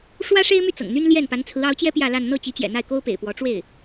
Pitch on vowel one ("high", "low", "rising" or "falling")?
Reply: high